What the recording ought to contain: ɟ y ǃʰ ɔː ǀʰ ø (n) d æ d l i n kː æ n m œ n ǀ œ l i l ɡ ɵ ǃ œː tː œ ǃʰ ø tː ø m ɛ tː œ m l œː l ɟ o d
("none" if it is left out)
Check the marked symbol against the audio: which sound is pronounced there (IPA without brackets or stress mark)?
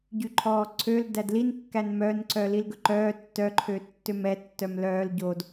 l